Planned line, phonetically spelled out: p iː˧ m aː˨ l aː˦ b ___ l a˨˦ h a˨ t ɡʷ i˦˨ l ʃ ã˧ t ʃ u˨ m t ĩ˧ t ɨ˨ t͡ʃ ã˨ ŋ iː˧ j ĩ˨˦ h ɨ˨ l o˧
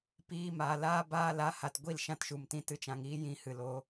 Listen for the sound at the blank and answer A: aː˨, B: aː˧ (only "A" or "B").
B